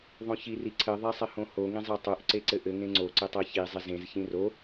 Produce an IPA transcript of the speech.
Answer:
ðˤ õ ç i r i ǀʰ ɘ ðˤ e sˤ ɪ h õ h o ŋ ĩ zˤ ɜ tˤ o ʔ ǀ e ǀ ɘ ʔ ɘ ŋ ẽ ŋ͡ǀ o ǀ ɘ tˤ ɜ ç i zˤ ɪ z ẽ z ç ĩ r o

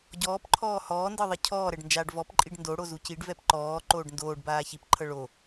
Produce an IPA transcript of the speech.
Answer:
ɟ ɔː p ǃʰ ɔː h ɔː n d ɤ ðˤ i cʰ ɔː ɾ ɛ ɖ n d͡ʒ aː ɖ v ɔ p ǃʼ i ɖ n d o ɽ o z u c i ɖ v ɛ p ǃ ɔː ǃ oː ɖ n d oː ɖ b aː ç i p ǃʰ ɤ ɭ o

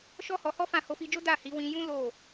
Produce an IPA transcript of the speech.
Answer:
ʃ ɔ˦ h ɔ˧ h ɔ˦ f ã˦˨ h o˧ f i˧ d͡ʒ o˦ d a˦˨ h i˨˦ w ĩ˧ j ũ˦ l o˦˨

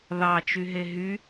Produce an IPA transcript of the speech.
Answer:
ð ɑ t͡ʃ y ɦ e ɦ y

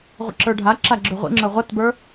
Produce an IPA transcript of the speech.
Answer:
ʁʷ ə̰ ǁ ə˞ ɖʱ a ǁ a ɡ͡ǁ ø ʁʷ ḭ ŋ͡ǁ ə˞ ʁʷ ʌ t b ə˞

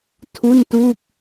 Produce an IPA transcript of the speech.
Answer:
tʰ u˥˩ n t uː˥˩ k̚

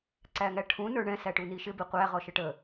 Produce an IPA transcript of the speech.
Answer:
ǀ æ ŋ æ ʈʰ ũ n ə˞ ɳ ɛ̃ s æ ʈ u n i ʃ ɪ b i qʷ æ ʁ ɔ ʃ ə ʈ ə

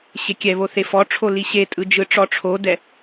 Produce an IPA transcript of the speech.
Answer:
ɕ e kʲ ɛ β o θ e f ɔ ʈ͡ʂʰ o l i ɕ e tʼ ɯ d͡ʒ ɯ ʈ͡ʂ ɔ ʈ͡ʂʰ o d ɛ

